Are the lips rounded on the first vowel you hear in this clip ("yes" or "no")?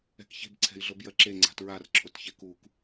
no